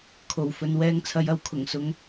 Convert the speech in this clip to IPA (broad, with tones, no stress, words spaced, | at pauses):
kʰo˨wfɵ˧n wɛː˧ŋt͡sʰɐ˨˧jɐ˨˧w kʰʊ˨˩ŋsʊ˨˥ŋ